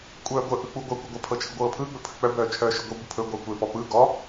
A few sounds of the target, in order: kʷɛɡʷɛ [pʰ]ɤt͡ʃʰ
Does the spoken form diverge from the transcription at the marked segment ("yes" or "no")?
no